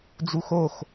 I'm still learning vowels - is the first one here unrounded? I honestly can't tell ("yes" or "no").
no